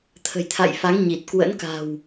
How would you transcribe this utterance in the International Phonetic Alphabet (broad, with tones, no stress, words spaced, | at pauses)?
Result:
t̪ʰə̤˨˩jt̪ʰa̰˧˨jfa˨˦ŋ ɲi˨˩t̚ kwə̰˧˥nka̤˨˩w